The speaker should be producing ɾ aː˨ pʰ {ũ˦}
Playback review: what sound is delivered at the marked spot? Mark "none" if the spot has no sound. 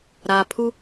u˦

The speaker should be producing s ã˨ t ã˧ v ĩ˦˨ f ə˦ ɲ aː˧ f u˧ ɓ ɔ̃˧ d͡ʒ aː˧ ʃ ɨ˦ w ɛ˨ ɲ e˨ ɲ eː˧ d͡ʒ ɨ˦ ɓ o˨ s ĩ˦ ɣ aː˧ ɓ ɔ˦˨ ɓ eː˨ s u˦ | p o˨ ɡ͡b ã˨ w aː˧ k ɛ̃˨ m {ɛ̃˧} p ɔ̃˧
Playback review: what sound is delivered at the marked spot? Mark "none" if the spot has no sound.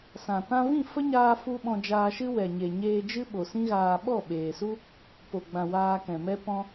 ɛ˧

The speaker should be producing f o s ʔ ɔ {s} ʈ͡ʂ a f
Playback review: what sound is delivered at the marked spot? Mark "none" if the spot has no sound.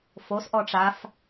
none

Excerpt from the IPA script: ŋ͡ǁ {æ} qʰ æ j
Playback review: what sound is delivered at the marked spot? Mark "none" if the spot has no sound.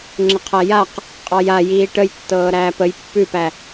ə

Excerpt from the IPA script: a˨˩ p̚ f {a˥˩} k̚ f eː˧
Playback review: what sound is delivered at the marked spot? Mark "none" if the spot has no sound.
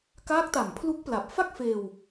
a˥˩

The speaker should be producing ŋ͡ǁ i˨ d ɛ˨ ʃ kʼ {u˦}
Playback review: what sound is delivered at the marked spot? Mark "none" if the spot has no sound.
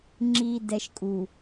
u˨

